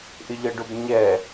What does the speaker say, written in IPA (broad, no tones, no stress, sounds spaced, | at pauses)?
ʔ ɪ ʎ ʌ ɖ ʊ b ɲ ɛ